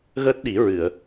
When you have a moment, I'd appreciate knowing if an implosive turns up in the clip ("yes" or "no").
yes